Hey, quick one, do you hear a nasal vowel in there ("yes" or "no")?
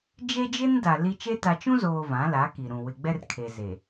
yes